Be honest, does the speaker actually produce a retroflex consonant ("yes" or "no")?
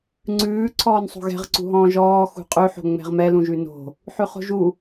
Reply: no